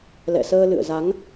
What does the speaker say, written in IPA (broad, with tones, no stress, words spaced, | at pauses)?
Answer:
lɛ̰˧˨səː˧lɨ̰˧˨ə̯za˨˦ŋ